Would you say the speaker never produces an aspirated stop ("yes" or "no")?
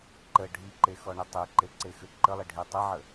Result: yes